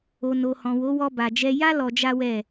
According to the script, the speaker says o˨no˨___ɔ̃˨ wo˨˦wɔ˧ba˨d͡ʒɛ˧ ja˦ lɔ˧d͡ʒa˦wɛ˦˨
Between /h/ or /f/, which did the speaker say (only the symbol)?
h